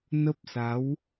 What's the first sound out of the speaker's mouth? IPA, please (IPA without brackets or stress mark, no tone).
n